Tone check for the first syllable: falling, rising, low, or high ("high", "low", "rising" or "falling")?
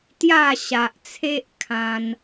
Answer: falling